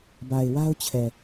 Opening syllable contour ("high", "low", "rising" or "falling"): low